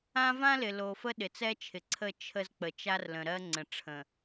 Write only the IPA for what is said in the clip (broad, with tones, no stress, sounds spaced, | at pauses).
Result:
ã˦ v ã˦ l ɪ˨ l o˨ f ə˦ ɗ ɪ˨ t͡s ɛ˦ t͡ʃʰ ɪ˨ ǀʰ ə˦˨ t͡ʃʰ ə˦ z k͡p ə˨ t͡ʃ a˦ r l ə̃˨ ɾ ɜ˦ ŋ͡ǀ ə̃˨ ʈ͡ʂʰ ə̃˨